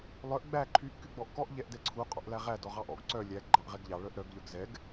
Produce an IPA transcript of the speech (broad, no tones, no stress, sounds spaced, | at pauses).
lˠ œ ʔ ɡ͡b æ ǃʰ y ʔ k y ɡ͡b ɔ ʔ k ɔ ʔ ʎ ɛ ʔ d ɛ ǀʰ u qʼ ɔ̰ ʔ l æ ʁ æ d ɔ ʁ ɑ ʔ ɔ̰ ɡ ǀ œ lʲ æ ɡ ɡ͡ǃ ɑ ʔ ʁ ɛ ɡ ʎ ɑ ɭ œ ʔ ɾ œ ɡ ʎ œ ɡ z ɛ ɡ